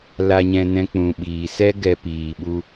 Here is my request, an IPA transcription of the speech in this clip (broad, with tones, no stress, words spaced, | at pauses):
la˨ɲɛ̃˨ nɛ̃˨ k͡pũ˨ɓiː˨ sɛ˧ɡɛ˨ piː˨ɓu˧